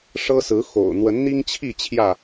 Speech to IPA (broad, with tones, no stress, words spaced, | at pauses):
ʂɤ˦sɹ̩˨˦xo̰˨˩ʊ̯ n̪wə˨˦nn̪i˦ŋt͡ɕʰi˥˨ t͡ɕʰjä˥˨